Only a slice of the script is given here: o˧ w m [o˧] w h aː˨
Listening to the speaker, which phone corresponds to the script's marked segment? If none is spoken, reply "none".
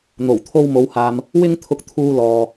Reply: o˨˧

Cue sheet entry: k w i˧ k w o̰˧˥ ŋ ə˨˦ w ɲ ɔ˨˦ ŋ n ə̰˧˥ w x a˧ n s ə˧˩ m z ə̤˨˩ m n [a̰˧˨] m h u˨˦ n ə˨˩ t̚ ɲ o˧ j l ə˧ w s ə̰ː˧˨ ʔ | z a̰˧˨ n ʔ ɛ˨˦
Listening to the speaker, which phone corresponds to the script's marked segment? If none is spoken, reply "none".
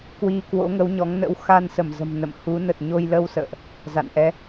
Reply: ə̰˧˨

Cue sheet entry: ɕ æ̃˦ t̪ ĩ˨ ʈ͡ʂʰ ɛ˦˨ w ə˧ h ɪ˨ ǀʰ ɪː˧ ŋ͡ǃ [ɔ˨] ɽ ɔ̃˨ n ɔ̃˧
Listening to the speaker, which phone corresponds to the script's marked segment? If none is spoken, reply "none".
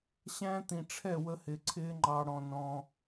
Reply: ɑ˨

